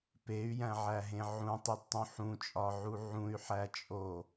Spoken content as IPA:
p e y̯ j æ̃ ʕ æ ɦ ẽ ʕ ũ tˤ i d tˤ ũ ħ ũ t͡ʃʼ ɒ ʕ u ʕ ũ y̯ ħ æ t͡ʃʼ o

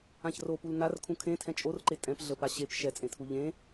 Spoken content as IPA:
ã ç r o p u l n a r kʰ ũ kʰ ẽ tʰ ɛ̃ t͡ʃʼ o r ǃ e tʼ ɛ̃ p ɮ ə p a ɕ e p ʃ ɛ t͡sʼ ẽ tʰ u ʎ ẽ

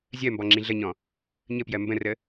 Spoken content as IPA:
zʲ ɜ m b ɔ ŋ͡ǁ ĩ ɮ ə ɲ ɔ̃ | ɲ ə p j ɜ m b ə̃ r ə

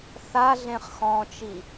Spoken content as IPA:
θ a ɮ ẽ χ x ɔ̃ t͡ʃ i

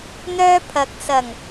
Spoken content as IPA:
n̪ œː˥ pʰ ɐ˨˥ k̚ s ɐ˨˩ ŋ

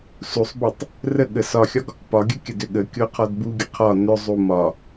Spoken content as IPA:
s u sˤ b ø tˤ | r ə ɠ ə s ɒ xʲ ɒ ɡ | p ɒ ɡʲ ə kʲ ə d ø ɠ ə kʲ o qʰ ɒ d b u ɡʲ ə qʰ ɒ n ø zˤ u m ɒ

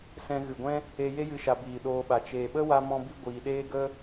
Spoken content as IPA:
s ɛ̃˧ ɣ ɨ˨ ɡʷ ɛ̃˦ | e˧ j e˦ j ɨ˦ ʃ a˧ b iː˨ ɗ oː˧ ɓ a˨ t͡ʃ eː˨ ɓ ə˦ w a˦ m ɔ̃˦ b i˦ ɡʷ iː˨ ɗ eː˦ ɡ ə˦

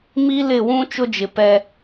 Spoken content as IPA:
m i˦ l ɪ˦˨ w ũ˦ t͡ʃ ʊ˦ d͡ʒ ɪ˨ p ɛ˦

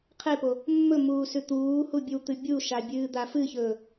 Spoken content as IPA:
qʰ e p o | mː ɵ m uː s ʉ t̪ uː h u bʲ ɨ w t̪ ɨ bʲ u ʃ a bʲ ɨː d̪ a f ɨ ç ɵː

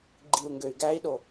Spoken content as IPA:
ɡ͡ǃ i u̯ ŋ ɡ ø y̯ ɡ æ i̯ ɗ o

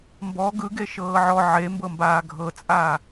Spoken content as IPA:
m b ɔ ɡ ɯ ɡ e ʃ ɤː ʕ ɔ ʕ e m b ɤ m b aː ɡʱ ɤ t͡sʼ aː

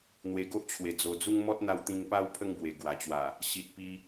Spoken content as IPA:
n̪ w e˧ ɡ o˦ ʔ t͡ɕʰ w e˨˩ d͡z o˨˩ d͡z u˦ ŋ m ɔ˦ t̚ n̪ a˧ w t̪ ĩ˧ ŋ p a˦ w pʰ ə˦ ŋ b w e˨˩ ɡ w a˨˩ t͡ɕ w a˨˩ | ɕ i˨ t̚ p i˧

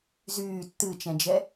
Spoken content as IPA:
z yː tː ɨ t͡ʃ ɛ̃ d͡ʒ ɛ

